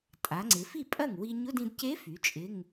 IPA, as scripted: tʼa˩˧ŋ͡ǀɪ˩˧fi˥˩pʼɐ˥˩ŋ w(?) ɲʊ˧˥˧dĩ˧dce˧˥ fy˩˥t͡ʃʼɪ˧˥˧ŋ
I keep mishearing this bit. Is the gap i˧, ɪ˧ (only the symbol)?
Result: i˧